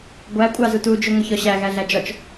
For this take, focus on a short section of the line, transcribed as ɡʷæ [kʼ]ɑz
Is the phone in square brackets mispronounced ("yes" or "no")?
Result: yes